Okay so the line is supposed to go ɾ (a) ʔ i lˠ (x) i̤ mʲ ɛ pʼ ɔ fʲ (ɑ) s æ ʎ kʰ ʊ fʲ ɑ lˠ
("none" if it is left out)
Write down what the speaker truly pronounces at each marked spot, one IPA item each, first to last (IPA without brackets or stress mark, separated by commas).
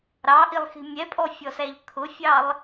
ɑ, x, ɔ